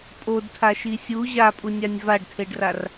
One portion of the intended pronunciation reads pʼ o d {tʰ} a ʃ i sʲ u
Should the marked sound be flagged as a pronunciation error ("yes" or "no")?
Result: no